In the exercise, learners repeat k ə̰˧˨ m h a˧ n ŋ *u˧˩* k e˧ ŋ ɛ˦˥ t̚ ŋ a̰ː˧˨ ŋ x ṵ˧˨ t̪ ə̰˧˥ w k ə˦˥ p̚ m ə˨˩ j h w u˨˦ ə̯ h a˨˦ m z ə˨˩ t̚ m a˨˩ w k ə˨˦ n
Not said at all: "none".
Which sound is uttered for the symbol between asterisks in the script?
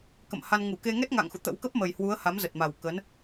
u˧˩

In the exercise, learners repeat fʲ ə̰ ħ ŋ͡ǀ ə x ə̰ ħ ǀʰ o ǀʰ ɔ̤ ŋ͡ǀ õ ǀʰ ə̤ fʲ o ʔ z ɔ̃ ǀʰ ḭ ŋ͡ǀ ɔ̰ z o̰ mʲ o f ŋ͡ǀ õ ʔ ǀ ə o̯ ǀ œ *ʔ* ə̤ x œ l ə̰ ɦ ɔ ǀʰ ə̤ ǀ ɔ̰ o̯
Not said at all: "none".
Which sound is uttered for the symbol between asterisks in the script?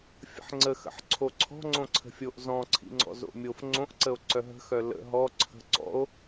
ɦ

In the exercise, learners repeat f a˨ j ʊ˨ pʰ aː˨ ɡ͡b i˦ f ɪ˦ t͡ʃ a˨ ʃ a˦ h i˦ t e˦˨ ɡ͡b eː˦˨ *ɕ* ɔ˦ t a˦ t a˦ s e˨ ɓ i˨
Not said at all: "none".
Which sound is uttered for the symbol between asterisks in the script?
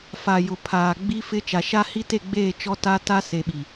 t͡ʃ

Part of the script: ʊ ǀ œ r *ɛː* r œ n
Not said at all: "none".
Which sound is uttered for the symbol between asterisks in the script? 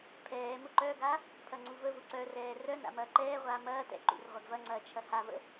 ɛː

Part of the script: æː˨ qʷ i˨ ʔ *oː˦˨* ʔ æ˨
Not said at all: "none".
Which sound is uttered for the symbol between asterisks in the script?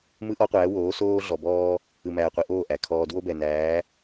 oː˦˨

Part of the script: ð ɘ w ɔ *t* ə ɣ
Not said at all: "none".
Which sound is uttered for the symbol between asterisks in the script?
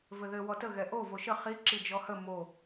t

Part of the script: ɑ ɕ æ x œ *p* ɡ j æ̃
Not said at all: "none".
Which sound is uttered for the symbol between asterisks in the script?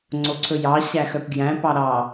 p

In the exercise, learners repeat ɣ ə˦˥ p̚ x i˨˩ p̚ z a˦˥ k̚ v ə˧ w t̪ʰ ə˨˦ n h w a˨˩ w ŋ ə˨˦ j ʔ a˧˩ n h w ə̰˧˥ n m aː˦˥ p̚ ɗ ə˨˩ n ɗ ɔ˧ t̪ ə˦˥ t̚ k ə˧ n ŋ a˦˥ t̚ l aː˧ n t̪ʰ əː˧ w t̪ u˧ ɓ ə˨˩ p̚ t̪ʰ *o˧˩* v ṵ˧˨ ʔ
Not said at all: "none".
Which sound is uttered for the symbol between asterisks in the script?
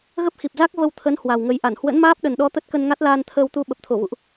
o˧˩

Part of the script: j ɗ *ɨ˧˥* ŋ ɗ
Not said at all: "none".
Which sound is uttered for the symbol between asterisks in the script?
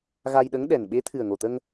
ə˧˥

